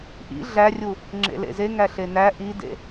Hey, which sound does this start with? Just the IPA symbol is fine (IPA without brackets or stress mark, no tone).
ʔ